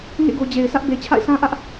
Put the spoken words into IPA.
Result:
ŋ ḛ˦˨ ɡ o˨ d͡ʑ e˨ ɪ̯ s ä˦ ʔ b e˨ t͡ɕʰ a̰˦˨ ɪ̯ sʰ ã˦ ʔ ä˦ ʔ

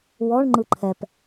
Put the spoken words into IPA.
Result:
w ɔ ɳ ŋ͡ǃ ɯ ǃʰ ɛ p

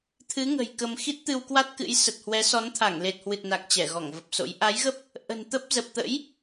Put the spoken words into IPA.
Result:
t̪ʰ ɨ˨˦ ŋ ə̤˨˩ j k ə˧ m x i˦˥ t̚ t̪ ɨ˧ w k w a˦˥ t̚ k ɨ̰˧˥ j s ə˨˩ t̚ h w ɛ˨˦ s ɔ˨˦ n t̪ʰ a˧˩ ŋ l e˨˩ t̚ h w ɨ˨˩ t̚ n a˨˩ k̚ t͡ɕ ɛ˧˩ ɣ ɔ˧˩ ŋ v ə˨˩ p̚ s o̰˧˥ j ʔ a˨˦ j ɣ ə˦˥ p̚ | ʔ ə̤˨˩ n t̪ ə˦˥ p̚ z ə˨˩ p̚ t̪ ə̰˧˥ j

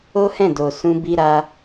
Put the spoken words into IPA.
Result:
o˦ h ɛ̃˦˨ d o˨ s ũ˧ b i˦ ɾ a˦

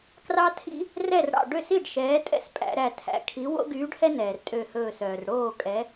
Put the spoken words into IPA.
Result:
k r ɑ˦ tʰ ḭ˦ | r ɛ˥˩ r ɽ ɑ̰˧˩ ɖ ø˥˩ s i˥˩ ɖ ʃ ɛː˨˥ tʼ ɛ̰˥˩ s pʼ æ̰˩˧ ɾ æ˧˩ tʰ æ̰˩˧ kʰ i˨˥ w o̰˦ ɡ yː˨˥ ɖ h ɛ˦ n ɛː˩ r tʼ ø˧˩ h ɵː˧˩ s œː˩ r ɽ oː˥˩ kʼ ɛ˨˥

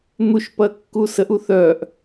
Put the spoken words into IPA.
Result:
n̪ u ʃ p ɐ kː u s ə ʔ u θ œ ʔ

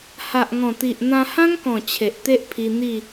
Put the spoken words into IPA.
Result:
h a˨ ʔ ŋ ɔ̃˨˩ t̪ i˨ ʔ n̪ ã˧ h ã˦ ŋ k ɔ̃˨˩ t͡ɕʰ e˨ ʔ t̪ e˦ ʔ pʰ i˧ n̪ i˥˧

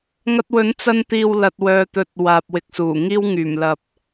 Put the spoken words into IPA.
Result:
ŋ ɐ˧ t̚ w ɵ˨˥ n t͡s ɐ˧ n t̪ iː˨ w l ɐ˨ t̚ w œː˨ t̪ ɵ˨˥ t̚ w aː˨ p̚ w ɪ˨ k̚ s uː˨˩ ŋ iː˥ w ŋ yː˨˩ m l ɐ˨ p̚

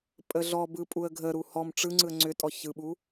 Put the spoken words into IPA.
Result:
pʼ ə ɮ ɔ b ɯ pʼ u ə̯ ɡʱ ə ɾ u h ɔ m ʈ͡ʂ ɯ ŋ͡ǀ ɯ ə̯ ŋ͡ǀ ʏ tʼ ɔ ç ɯ ɓ u

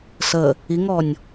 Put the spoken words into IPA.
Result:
s ə | i ŋ ɔ nʲ

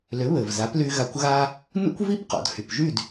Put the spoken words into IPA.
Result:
l ʏ˩˥ β ɘ˩ v z a˩˥ p l y˧ ɣ a˧ kʷ ɣ a˥ | n ṵ˥ kʷ v i˥ p q ɔ̰˩ d h y˩ p ʒ y˥˩ d

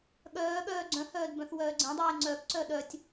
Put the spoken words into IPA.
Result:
ɠ œː ɠ œː ɡ͡ǀ œ̃ h œː d b œ̃ θ w œː ɡ͡ǀ ẽ dˤ eː ŋ͡ǀ œ k ǀ œ ɗ œ tʲ

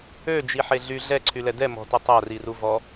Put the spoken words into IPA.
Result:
ø d͡ʒ i ħ e ɮ y ɮ ɛ ǀʰ y l ɛ d ɛ m ɔ̤ t ɛ tˤ a r i r u v ɔ

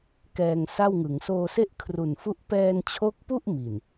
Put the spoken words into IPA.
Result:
k ɛː˧ ŋ s a˥˩ w ŋ ɯ˩˦ ŋ s oː˧ s e˥˩ ʔ kʰ r u˨˩ n f u˦˥ ʔ p ɛː˧ n t͡ɕʰ o˦˥ k̚ p u˥˩ ʔ m i˨˩ n

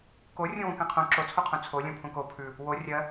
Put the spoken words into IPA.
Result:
k o rʲ ũ w ũ k ɛ̃ qʰ ũ ǁ o t͡sʰ u qʰ ũ t͡sʰ o lʲ õ pʰ ũ k o pʰ ʉ | w o rʲ ɜ

